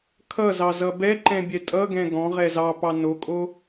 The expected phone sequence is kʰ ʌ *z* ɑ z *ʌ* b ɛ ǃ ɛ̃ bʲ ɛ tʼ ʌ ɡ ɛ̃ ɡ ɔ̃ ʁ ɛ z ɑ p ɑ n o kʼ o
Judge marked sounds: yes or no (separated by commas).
yes, yes